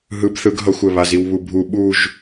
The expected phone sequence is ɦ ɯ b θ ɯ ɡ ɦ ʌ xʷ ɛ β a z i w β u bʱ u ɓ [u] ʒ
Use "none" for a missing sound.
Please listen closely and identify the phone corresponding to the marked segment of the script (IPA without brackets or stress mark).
u